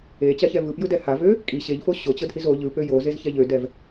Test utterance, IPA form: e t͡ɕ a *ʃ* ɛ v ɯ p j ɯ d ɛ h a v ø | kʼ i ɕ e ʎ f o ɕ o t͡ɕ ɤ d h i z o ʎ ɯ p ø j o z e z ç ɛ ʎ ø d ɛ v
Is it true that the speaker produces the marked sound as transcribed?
no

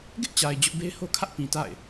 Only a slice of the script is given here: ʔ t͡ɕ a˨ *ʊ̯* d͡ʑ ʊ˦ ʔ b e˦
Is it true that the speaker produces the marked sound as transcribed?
no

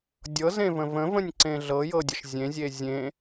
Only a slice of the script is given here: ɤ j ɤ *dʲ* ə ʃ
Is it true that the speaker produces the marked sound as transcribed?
yes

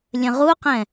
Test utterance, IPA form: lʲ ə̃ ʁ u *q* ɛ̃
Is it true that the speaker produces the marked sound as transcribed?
yes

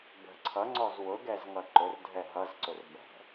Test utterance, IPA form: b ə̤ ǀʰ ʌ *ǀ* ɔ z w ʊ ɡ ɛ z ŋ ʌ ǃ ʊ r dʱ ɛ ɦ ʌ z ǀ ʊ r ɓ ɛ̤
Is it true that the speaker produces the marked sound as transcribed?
no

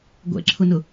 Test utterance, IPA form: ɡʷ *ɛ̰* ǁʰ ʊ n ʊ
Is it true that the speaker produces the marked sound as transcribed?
yes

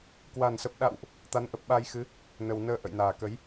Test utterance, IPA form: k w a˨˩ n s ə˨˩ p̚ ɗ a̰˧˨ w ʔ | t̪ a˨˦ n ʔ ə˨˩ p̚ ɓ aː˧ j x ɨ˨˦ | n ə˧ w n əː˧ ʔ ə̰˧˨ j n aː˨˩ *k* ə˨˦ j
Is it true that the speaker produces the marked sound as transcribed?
yes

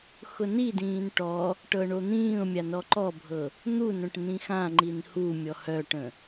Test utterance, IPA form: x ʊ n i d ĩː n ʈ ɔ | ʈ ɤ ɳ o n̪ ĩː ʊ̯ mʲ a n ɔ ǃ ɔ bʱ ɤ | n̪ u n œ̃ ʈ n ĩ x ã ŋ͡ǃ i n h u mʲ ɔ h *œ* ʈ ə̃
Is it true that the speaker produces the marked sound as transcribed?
yes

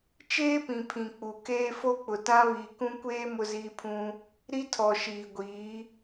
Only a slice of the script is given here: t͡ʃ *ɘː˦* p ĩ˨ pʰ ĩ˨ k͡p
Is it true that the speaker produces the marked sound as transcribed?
no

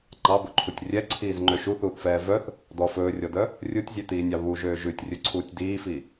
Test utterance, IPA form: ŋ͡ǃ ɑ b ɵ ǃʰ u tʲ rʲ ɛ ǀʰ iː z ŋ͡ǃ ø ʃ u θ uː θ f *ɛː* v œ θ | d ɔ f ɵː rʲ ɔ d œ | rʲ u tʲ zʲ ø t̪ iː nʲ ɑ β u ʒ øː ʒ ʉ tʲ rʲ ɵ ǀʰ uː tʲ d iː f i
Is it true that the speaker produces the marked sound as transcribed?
yes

